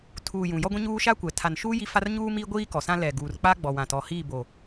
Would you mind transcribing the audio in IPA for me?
tʰ uː˨ j ũ˨ j ɔ˦ ɡʷ ĩ˦ ɲ uː˦ ʃ a˦ kʷ ɛ˨ tʰ a˨ n ʃ uː˦ j i˦ f a˦ r ɲ uː˦ m iː˦ ɡʷ iː˦ k ɔ˨ s ã˦ l ɛ˨ ɡ uː˨ r k͡p a˦ ɡ͡b ɔ˨ w ã˨ t ɔ˨ h iː˦˨ b o˨

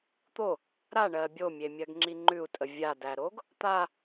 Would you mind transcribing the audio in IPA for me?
t̪ o | ɾ a ɳ ɜ bʲ o mʲ e mʲ ɜ ɡ ŋ͡ǁ i ŋ͡ǃ ʉ u̯ tʼ ə vʲ a d æ ɾ o ɡ | t̪ a

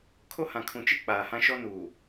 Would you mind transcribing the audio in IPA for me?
kʰ o˦ h ã˨ kʰ ũ˨ t͡ʃ i˦ k͡p aː˨ h ã˦ ʃ ɔ˦ n uː˨

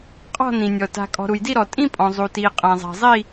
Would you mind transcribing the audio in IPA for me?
qʼ ɔ̤˥˧ n ĩ˨ nʲ ɔ˨ t a̤˨ kʼ ɔ̤˨ ɾ u˨ j d i˥˧ ɾ ɔ˨ tʼ ĩ˥˧ pʼ ɔ̃˨ zˤ u˨ t iː˨ qʼ ã˨ zˤ a̤˨ zˤ i˥˧

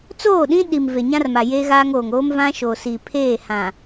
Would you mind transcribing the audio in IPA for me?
t͡s oː˦˨ ɗ ĩ˦ ɗ i˨ m v e˨ ɲ ã˦ r m a˨ j eː˦ ɣ aː˦ ŋ oː˨ ŋ oː˦ m v ã˦ ʃ o˨ s i˨ pʰ eː˦˨ h ã˨

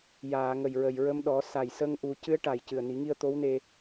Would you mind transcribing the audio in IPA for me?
j aː˨˩˨ ŋ ə˨˩ j ɹ ə˨˩ j ɹ ə˧ m ɗ ɔ˨˩˦ s a˨˩ j s ə˧ ŋ ʔ u˨˩˦ c ɨ˧˥ ə̯ ʈ a˨˩ j c ɨ˨˩ ə̯ n i˨˩˦ ŋ i˧ ə̯ t̪ o˧˥ w n e˧

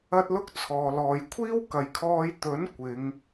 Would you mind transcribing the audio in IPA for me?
ɐ˥ t̚ l ʊ˥ k̚ t͡sʰ ɔː˨ l ɔː˨ j kʷʰ iː˥ w k ɐ˨ j kʰ ɔː˧ j t̪ ɵ˨˥ n kʷ ɪ˨˧ ŋ

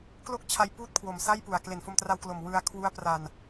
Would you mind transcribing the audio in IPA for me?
k l o˥˩ k̚ t͡ɕʰ a˧ j p uː˥˩ t̚ kʰ w o˨˩ m s a˥˩ j p u˨˩ a̯ k l e˨˩ n f o˧ m t r a˧ w k l o˨˩ m w ɯ˧ a̯ kʰ w u˦˥ a̯ p r a˧ n

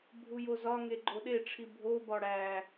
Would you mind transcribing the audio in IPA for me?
bʱ u j o z ɒ ŋ e ɡ͡ǃ o ɗ e ʈ͡ʂʰ i bʱ o b ɒ ɽ æ

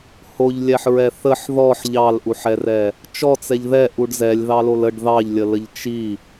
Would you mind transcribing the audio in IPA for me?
h o ʎ lʲ ɛ ħ ɹ ɛ θ ə ħ ð ɔ ħ ʎ ɑ l ʔ u ħ ɛ r ɛ | t͡ʃ ɔ t͡s ɛ ʎ ð ɛ ʔ u ɖ z ɛ lʲ ð ɑ l o l ə ɖ ð ɑ ʎ lʲ ə l ə ʎ t͡ʃ i

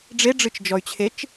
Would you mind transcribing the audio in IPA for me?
ɖ͡ʐ e ɖ͡ʐ ɨ t͡ʃ d͡ʒ ɔ y̯ t͡ɕʰ e t͡ʃ

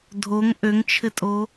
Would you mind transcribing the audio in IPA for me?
dʱ o ŋ ʔ ø ŋ t͡ʃʰ ɘ tʼ o

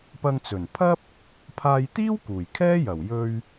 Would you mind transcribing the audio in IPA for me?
p ɐ˧ ŋ t͡s ɵ˨˩ n pʰ ɐ˥ p̚ | pʰ aː˧ j t̪ iː˥ w k uː˨˩ j kʰ ɛː˥ j ɐ˨˩ w j ɵ˧ ɥ

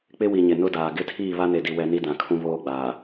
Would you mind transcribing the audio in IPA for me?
k͡p ɪ˦ w i˨ ɲ ɪ˨ n ʊ˦ d aː˨ ɡ ɪ˦˨ tʰ iː˦˨ β a˦ n e˨ d i˨ w ɛ˦ n i˦ d ã˨ kʰ ũ˦ β oː˦ ɡ͡b aː˨

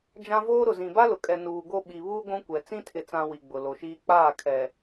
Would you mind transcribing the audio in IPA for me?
d͡ʒ ã˦ v oː˦ ɾ ʊ˨ z ĩ˨ b a˦ l ʊ˨ kʼ ɛ˨ n uː˨ ɡ o˦ ɓ i˨ β uː˦ ɡʷ ũ˦ kʷ ɛ˨ t͡s ĩ˦ tʰ ɪ˨ t͡s ã˨ w i˨ ɡ͡b ʊ˨ l o˨ ʃ iː˦ k͡p aː˦˨ kʰ ɛ˨

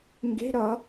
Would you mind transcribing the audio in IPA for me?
ŋ ɡ e̤ ɾ ʌ

